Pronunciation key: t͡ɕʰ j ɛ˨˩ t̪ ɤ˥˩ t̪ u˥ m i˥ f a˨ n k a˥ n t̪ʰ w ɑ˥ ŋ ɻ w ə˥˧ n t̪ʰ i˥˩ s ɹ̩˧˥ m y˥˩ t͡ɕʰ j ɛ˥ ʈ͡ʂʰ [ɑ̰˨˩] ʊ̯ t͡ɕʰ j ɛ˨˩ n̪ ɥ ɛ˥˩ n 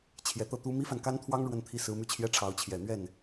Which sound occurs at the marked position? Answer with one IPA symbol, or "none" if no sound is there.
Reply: ɑ˧˥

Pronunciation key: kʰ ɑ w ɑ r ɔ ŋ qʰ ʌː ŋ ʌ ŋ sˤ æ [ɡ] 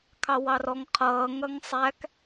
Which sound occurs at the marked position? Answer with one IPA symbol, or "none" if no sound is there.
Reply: k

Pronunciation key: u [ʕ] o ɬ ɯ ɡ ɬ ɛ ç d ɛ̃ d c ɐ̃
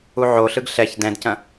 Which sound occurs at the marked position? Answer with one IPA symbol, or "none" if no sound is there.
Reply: ʕ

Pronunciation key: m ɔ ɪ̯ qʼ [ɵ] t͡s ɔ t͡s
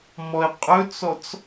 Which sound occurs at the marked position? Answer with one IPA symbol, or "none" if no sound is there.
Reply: ɵ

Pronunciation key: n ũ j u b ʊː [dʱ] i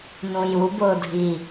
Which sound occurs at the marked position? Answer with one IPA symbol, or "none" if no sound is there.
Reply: dʱ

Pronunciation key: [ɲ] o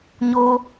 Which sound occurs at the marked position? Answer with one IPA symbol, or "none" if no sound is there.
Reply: ɲ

